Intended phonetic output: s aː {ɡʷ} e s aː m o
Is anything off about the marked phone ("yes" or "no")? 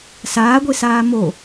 no